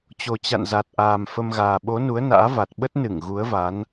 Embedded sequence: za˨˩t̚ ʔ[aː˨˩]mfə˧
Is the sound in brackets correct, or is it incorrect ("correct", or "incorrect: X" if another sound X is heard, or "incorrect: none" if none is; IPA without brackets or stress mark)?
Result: correct